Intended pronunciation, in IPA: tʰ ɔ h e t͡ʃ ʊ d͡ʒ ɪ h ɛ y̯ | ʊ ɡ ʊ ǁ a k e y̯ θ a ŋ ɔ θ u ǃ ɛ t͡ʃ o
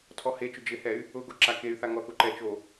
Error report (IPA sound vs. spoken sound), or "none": none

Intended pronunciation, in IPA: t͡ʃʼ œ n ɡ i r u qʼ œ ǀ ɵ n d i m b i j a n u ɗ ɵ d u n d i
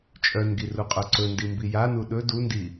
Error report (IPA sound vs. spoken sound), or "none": none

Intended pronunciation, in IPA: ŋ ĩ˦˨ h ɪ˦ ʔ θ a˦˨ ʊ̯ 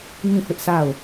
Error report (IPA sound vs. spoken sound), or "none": θ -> s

